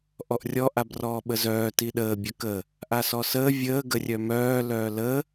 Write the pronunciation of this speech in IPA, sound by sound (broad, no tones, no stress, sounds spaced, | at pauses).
ʔ ɔ ʔ rʲ ɔ ʔ a b r ɔː ɓ ə z œː t i ɗ əː bʲ œ k ə | ʔ a s ɔ s əː vʲ əː ɡ ə rʲ œ m œː l œː l ə